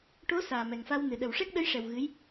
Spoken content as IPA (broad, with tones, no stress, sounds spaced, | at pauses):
ʈ o˧˥ s aː˨˩ m ɛ˨˩ ŋ f a˧ w n ɨ˨˩ ɗ ə˨˩ w ʂ ɛ˦˥ k̚ ɗ ə˧˥ j ʂ ɛ˨˩ w ɣ ɨ˧˥ j